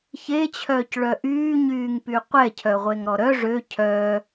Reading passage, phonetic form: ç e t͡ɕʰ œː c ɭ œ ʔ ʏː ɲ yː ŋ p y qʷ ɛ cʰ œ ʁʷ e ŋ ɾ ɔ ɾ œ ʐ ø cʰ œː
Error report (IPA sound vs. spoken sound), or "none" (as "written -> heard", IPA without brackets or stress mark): ʏː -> yː